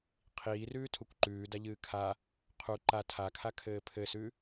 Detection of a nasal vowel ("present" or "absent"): absent